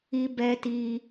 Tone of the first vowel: high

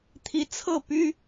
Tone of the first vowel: rising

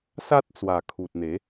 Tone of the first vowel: high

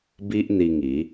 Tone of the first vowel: high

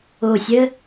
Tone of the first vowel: low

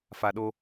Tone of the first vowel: low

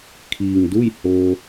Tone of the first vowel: low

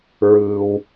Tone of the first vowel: low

